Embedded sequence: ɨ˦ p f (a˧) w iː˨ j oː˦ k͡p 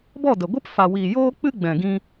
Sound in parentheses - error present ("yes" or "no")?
yes